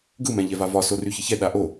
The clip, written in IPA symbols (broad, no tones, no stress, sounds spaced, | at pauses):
ɡ ɯ m ɛ̃ ʎ ɛ v a v ɒ s o r y ç ə ç ɛ ɗ a ʔ o